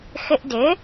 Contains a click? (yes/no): no